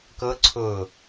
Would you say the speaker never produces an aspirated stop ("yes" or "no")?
no